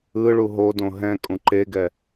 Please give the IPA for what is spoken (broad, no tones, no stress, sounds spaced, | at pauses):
ɯ ɭ u ɦ o d õ ɦ ɛ̃ kʼ ũ ǃ e ɡ ɛ